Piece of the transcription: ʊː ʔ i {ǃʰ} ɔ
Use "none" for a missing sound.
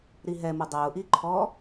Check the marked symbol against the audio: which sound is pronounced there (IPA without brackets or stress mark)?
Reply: ǃʰ